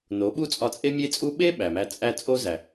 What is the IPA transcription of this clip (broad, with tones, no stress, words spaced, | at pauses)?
no˨˦ɓu˦ t͡sʼɒ˧t͡sʼe˦mʲe˦t͡sʼu˦ ɓe˦ ɓæ˨mæ˧ t͡sʼæ˧t͡sʼo˦ zæ˨